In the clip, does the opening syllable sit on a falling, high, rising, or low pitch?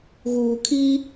low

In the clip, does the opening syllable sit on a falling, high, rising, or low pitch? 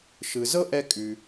low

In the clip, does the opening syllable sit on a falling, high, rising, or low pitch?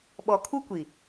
low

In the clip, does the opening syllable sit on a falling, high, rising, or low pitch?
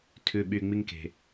low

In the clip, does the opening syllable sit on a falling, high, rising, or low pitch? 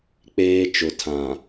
high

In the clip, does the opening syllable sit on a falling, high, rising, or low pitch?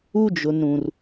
high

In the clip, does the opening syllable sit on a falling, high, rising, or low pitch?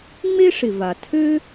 high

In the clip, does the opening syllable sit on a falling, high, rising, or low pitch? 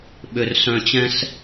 low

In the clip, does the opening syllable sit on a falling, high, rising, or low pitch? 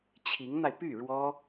rising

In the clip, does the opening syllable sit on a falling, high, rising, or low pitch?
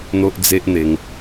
high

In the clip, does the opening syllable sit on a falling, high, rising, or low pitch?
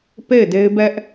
falling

